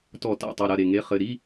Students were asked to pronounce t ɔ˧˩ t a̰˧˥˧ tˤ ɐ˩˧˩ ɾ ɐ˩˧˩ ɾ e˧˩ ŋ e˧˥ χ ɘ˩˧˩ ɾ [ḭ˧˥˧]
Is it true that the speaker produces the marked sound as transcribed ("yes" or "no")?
no